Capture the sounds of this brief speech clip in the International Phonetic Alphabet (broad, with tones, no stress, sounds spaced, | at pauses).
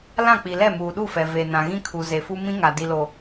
l ã˦˨ k͡p i˨ l ɛ˦˨ m uː˨ ɗ u˦˨ f ɛ˨ v e˨ n ã˨ ɣ ĩ˦ kʰ u˨ z e˨ f u˦ m ĩ˦ ŋ a˨ d i˨ l o˨